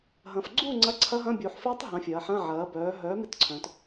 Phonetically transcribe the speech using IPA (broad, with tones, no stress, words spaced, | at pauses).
ɦɐ̃˩˧fɡ͡ǀu˥˨ ŋ͡ǀɐ˧˥˧ǀʰɐ˦˥ɦɐ̃˧˥˧ bʲu˩˧ħfɪː˦˥tˤ ɦɐ̃˨˥fʲɐː˩˧ħɐ̃˧˥˧ ʕɐː˨˥bœː˨˥ ɦœː˨˥ mɪ˦˥tǀʰœ̃˩˧t